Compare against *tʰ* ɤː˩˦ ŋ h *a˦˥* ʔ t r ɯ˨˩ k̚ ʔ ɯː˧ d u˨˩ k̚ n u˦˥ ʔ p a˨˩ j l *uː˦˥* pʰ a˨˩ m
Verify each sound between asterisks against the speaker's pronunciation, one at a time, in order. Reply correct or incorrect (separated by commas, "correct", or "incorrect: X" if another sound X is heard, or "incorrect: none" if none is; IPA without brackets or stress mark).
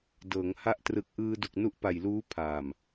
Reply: incorrect: d, correct, correct